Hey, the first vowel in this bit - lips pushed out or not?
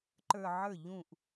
no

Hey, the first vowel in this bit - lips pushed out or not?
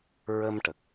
no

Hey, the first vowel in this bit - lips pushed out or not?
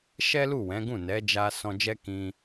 no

